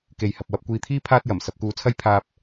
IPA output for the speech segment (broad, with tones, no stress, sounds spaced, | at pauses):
k e˨ j h ɐ˨ p̚ w ɐ˧ p̚ kʷ iː˧ t̪ʰ iː˥ pʰ aː˥ t̚ j ɐ˨˩ m s ɐ˧ p̚ k uː˧ t͡sʰ ɐ˥ j pʰ aː˧ p̚